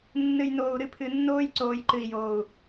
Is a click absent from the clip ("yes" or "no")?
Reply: no